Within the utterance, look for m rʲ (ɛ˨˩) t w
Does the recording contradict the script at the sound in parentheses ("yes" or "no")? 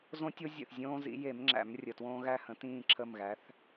yes